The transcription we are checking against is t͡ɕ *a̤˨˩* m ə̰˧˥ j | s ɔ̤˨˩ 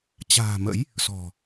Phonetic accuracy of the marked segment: incorrect: a̤ː˨˩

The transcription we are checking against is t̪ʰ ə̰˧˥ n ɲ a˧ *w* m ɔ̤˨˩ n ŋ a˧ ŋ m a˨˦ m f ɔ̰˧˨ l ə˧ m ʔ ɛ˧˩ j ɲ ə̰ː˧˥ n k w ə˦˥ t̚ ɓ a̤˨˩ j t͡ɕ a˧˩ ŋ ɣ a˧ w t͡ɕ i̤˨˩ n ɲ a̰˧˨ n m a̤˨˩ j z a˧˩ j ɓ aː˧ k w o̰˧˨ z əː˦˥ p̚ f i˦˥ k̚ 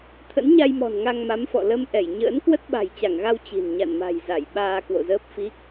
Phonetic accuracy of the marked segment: incorrect: j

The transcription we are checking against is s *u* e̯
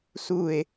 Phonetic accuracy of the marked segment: correct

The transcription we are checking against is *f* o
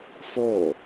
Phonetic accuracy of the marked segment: correct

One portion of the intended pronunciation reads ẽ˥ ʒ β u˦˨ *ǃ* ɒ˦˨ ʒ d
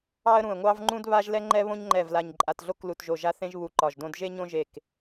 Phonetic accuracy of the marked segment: correct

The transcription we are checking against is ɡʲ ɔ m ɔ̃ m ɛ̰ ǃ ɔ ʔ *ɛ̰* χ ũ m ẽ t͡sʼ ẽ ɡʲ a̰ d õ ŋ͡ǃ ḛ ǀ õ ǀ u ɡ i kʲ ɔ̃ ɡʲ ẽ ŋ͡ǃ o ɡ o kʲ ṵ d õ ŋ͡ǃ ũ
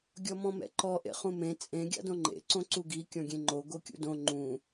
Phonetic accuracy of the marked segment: incorrect: ḛ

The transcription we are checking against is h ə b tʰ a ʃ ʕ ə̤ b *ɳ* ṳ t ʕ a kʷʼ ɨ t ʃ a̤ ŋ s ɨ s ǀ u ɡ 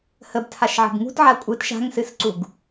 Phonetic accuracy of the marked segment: incorrect: ŋ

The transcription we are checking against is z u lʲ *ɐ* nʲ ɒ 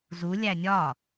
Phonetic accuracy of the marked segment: incorrect: æ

